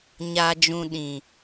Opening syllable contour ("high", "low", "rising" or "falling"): low